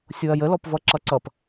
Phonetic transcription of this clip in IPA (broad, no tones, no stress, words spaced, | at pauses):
sʲoɐ̯jəlɔpvʌ ǁʌǀʌp